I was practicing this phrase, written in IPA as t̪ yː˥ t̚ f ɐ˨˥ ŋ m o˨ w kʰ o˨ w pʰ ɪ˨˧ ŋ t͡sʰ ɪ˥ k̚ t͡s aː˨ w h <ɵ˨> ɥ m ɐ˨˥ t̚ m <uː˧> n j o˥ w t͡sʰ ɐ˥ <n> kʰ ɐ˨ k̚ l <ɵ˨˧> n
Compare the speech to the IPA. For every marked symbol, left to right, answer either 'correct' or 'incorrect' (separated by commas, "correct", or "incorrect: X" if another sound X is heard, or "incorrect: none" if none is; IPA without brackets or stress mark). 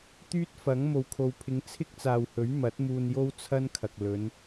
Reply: incorrect: ɵ˨˥, correct, correct, correct